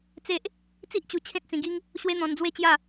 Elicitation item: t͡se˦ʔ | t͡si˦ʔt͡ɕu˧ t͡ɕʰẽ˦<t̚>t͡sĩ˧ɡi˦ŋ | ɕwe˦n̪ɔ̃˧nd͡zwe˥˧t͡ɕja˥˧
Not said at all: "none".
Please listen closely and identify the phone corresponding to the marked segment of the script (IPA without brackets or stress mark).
t̚